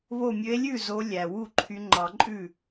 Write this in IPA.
β o˧˩ mʲ ø˨˦ e̯ lʲ ʉ˥˩ z o˨˦ lʲ æ˩ w u˥˩ ǃʰ y˨˦ ŋ͡ǃ ɑ˨˩˦ ǃʼ ʉ˥˩

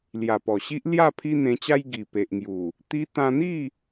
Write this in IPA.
l j a˨˩ p ɔ˨˩ ɕ i˦ ʔ l j a˥˧ pʰ i˦ n̪ ẽ˧ t͡ɕ a˦ j ɡ i˨˩ p e˨ ʔ ŋ j u˨˩ | t̪ i˧ t̪ ã˧ n̪ i˥˧

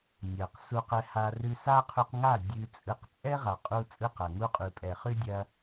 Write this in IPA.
nʲ ɐ˨ q s u˧ q ɛ˧ h a˧ r ʉ˧ s a˦ qʰ ʉ˧ q ŋ a˦˨ dʲ ʉ˧ t͡sʼ ɯ˧ q t͡sʼ ɛ˦ ʁ a˨ qʼ u˧ t͡sʼ ɯ˧ q ɐ˨ ŋ u˧ qʼ ʉ˨ pʼ ɛ˨ χ ʉ˦ dʲ ɐ˧

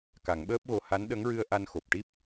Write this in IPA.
k a˨˩˦ ŋ ɓ əː˦˥ p̚ ɣ o˧ h a˧˥ n ɗ ə˧˥ ŋ ɹ ɨ˧ ə̯ ʔ a˧ n x o˨˩ p̚ ʈ i˦˥ p̚

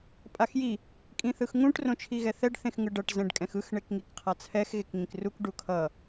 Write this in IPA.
pʼ a x j i | kʼ ĩ θ ɯ x ŋ ũ ʈ r õ t͡ʃʰ i ɣ ɛ θ ɛ ɖ θ ẽ x ŋ ɯ ɖ ʌ ʈ z ɛ̃ ɖ kʼ ɛ̃ x ɯ x ɳ e k ŋ i k qʰ a t͡sʰ ɛ x ɣ e k ŋ ĩ k r u k ɖ u kʰ ʌ

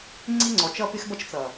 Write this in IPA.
ŋ͡ǀ i˦ ŋ͡ǀ ɔ˨ t͡ʃ ʌ˦ p ɪ˦ x b ʌ˦ t͡ʃ t͡s ʌ˨

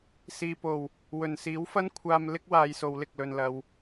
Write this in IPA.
s iː˨ p o˨˩ w | w ɵ˨˩ n s iː˨˥ w f ɐ˥ n kʷʰ aː˧ m l ɪ˥ k̚ w aː˨˧ j s o˨˧ w l ɪ˨ k̚ l ɵ˨ n l ɐ˨ w

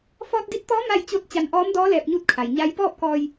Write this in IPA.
f ɔː˧ t̚ d i˧˥ t̚ t̪ ɔː˧˥ m a˥˨ j t͡ɕ o˥˨ t̚ t͡ɕ a˧ n ʔ ɔː˧˥ m d ɔː˧˥ l ɛː˧ p̚ ɲ uː˥˨ t̚ kʰ a˩ j ɲ a˧˥ j p ɔː˥˨ p̚ k ɔː˧ j

